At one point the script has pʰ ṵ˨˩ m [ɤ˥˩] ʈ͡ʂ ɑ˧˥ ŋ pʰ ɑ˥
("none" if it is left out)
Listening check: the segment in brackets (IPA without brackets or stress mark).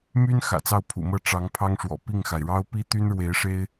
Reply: ɤ˥˩